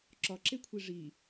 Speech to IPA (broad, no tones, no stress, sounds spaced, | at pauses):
ǁ ɒ ǁ e kʷʰ i ʐ i